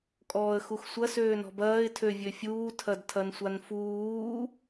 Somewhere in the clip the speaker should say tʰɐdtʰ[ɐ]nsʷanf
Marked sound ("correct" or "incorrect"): correct